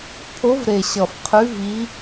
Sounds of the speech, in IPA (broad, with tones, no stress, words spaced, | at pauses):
pʰo˨˦v ɾe˨˩ɕʌ˨˩fqʰʉ˨˦ vi˨˦